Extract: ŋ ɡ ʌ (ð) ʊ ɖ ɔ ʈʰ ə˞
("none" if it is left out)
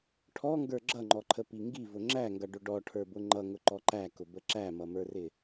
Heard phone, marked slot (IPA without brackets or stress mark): ɖ